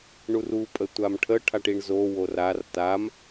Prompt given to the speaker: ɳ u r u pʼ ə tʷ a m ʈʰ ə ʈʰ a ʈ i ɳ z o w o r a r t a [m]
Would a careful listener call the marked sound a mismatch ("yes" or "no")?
no